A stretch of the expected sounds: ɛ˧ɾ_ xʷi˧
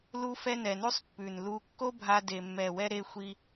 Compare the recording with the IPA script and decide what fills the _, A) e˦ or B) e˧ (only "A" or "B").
B